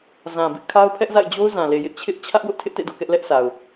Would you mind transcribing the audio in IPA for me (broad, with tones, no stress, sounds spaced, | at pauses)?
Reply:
z ã˨ b ɪ˦ ʔ kʰ a˦ ʊ̯ pʰ ɛ˦ ʔ z a̰˦˨ ɪ̯ d͡ʑ o˦ ʊ̯ z ã˨ l e˨ j ɪ˦ ʔ t͡ɕʰ ɪ˦ ʔ t͡ɕʰ ä˦ ʔ w ʊ˦ ʔ tʰ ɪ˦ ʔ t ḛ˦˨ d o̰˦˨ k ɛ˦ ʔ l ɛ˦ ʔ sʰ a˨ ʊ̯